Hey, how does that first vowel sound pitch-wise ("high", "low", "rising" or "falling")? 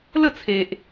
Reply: falling